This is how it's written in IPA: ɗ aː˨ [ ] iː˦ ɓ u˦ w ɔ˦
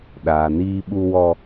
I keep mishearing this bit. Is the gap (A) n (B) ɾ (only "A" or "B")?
A